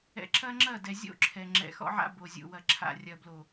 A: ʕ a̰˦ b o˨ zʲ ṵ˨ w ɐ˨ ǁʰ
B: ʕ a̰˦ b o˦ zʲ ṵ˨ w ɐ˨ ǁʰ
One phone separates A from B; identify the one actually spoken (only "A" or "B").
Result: A